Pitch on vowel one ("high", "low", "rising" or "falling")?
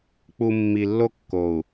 low